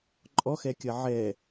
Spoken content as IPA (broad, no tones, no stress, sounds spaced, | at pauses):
ǃʼ ɔ x ɛ kʲ ɐ ʕ ɛ